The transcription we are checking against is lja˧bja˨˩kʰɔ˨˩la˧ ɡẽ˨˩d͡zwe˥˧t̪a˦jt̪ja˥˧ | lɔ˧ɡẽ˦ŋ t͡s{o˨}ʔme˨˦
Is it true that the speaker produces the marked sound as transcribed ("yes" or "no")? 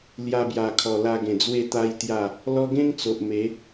yes